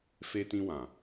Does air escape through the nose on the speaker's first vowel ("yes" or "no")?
no